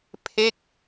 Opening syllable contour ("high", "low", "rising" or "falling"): falling